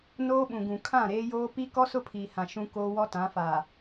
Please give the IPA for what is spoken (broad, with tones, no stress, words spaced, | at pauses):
noː˦ɓũ˨ɡũ˨ kʰã˦˨ɾeː˦joː˦ pi˦ kɔ˦sʊ˦pʰiː˨hã˨ ʃũ˦koː˦ wɔ˦tã˨˦faː˨